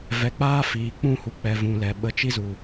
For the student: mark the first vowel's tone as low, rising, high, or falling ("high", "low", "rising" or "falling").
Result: rising